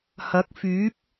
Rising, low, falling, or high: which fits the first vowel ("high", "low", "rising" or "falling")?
rising